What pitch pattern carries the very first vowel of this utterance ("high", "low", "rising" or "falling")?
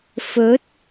rising